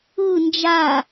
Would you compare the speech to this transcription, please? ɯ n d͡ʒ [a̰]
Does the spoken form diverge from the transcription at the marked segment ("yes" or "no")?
yes